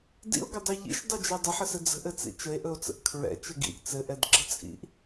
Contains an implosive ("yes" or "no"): no